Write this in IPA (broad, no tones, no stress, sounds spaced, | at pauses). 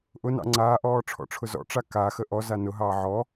ʔ ʊ n ɑ̰ ŋ͡ǀ aː ʔ ɔː ʈ͡ʂʰ ɔ̰ ʈ͡ʂʰ ʊ z ɔ̰ ʈ͡ʂ a k a x ə ʔ ɔ z a n ʊ ɦ ɑː ʕ ɔ